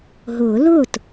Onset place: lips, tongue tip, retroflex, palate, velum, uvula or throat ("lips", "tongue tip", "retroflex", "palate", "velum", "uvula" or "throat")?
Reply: throat